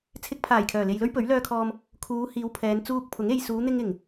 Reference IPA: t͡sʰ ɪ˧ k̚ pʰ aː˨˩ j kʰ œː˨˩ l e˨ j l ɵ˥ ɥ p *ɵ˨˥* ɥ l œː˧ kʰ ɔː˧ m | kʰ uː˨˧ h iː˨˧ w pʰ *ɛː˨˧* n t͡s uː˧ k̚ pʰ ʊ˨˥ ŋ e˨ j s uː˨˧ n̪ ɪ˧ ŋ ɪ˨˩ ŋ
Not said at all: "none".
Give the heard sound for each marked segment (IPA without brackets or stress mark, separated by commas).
ɵ˨˥, ɛː˨˧